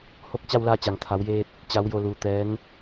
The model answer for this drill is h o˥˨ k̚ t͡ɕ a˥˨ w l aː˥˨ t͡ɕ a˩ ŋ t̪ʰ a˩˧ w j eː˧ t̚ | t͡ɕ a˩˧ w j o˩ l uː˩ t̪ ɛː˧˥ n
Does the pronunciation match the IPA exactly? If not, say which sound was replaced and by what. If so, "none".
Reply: none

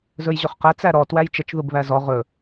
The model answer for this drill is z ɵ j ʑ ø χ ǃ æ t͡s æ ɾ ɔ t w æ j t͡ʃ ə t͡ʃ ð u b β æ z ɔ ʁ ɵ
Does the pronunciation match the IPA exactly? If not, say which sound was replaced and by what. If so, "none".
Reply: ǃ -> q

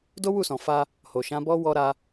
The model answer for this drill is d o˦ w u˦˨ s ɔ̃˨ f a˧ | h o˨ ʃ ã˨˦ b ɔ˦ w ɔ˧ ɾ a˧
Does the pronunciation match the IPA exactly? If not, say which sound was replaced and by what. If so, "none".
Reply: none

